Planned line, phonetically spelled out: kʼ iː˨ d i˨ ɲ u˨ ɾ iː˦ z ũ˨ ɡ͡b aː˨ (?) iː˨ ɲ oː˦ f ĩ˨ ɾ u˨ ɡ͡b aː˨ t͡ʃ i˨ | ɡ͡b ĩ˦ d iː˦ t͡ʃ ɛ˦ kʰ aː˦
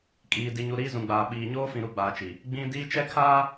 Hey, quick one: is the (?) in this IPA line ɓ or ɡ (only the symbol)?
ɓ